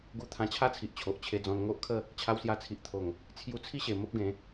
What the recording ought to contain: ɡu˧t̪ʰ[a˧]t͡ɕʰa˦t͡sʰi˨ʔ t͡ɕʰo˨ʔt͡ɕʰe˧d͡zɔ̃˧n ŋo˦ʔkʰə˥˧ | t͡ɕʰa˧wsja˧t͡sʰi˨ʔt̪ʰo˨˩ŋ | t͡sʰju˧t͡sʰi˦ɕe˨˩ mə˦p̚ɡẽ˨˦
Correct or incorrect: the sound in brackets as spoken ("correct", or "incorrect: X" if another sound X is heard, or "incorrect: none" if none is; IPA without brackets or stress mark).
incorrect: ã˧